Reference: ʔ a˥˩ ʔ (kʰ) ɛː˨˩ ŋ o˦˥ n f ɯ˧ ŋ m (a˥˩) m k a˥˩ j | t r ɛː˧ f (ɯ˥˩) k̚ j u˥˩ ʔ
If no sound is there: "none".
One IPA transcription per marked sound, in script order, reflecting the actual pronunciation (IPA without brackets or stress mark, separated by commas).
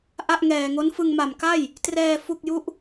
ŋ, a˨˩, u˥˩